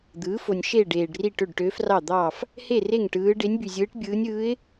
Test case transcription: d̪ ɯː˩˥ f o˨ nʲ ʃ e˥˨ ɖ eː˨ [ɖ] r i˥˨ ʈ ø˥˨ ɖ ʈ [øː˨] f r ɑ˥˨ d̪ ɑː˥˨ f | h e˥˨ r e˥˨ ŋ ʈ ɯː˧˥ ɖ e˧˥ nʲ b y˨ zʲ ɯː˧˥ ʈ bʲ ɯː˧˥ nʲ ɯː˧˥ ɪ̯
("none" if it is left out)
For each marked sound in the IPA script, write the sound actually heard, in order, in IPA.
ɖ, øː˧˥

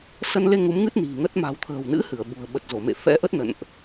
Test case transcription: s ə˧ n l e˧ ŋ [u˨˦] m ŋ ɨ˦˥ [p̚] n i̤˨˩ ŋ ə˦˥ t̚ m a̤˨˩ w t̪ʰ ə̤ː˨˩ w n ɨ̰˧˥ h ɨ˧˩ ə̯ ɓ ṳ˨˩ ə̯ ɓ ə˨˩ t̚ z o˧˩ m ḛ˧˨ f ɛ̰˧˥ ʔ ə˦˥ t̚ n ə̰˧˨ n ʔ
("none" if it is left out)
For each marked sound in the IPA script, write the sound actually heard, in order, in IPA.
u˨˦, t̚

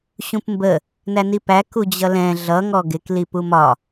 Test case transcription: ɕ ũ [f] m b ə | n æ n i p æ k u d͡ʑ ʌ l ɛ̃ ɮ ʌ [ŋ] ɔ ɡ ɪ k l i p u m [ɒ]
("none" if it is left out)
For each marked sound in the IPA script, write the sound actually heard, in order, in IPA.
p, ŋ, ɒ

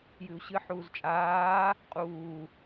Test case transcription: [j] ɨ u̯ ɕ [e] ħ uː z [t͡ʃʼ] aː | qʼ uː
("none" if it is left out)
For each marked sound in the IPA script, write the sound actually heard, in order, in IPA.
j, ɨ, t͡ʃʼ

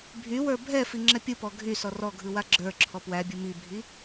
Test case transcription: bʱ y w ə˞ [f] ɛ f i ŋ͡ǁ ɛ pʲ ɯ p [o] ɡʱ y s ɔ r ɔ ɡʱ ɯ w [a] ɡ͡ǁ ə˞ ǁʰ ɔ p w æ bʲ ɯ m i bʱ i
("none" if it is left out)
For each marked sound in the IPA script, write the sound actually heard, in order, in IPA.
bʱ, ɔ, a

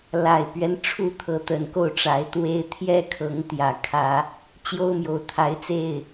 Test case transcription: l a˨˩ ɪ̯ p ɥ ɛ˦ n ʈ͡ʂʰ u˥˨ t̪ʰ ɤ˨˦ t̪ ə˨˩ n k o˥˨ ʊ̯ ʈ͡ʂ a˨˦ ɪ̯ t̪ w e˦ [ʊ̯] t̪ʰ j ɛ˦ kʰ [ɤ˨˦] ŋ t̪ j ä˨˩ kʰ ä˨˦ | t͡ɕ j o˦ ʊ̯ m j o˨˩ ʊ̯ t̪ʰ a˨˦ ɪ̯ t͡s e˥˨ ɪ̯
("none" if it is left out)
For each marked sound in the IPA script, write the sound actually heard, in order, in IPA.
ɪ̯, ɤ˨˦

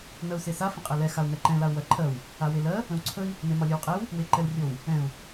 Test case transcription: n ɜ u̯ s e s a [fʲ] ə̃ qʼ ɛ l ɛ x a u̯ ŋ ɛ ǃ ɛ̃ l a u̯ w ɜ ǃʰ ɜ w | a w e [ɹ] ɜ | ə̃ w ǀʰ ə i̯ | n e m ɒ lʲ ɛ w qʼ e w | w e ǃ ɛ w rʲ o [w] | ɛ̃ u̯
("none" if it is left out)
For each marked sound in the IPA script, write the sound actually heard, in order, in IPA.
f, l, w

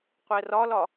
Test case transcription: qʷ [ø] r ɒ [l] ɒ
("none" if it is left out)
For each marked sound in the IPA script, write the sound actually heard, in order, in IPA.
ɛ, l

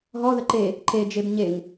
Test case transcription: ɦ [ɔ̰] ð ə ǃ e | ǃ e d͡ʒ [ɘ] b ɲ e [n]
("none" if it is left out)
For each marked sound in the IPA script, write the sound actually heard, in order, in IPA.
ɔ, e, ŋ

